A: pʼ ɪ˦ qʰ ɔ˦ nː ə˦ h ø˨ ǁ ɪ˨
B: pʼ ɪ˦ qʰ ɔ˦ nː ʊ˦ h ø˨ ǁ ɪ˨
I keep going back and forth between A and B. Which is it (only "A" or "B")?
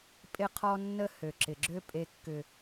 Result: A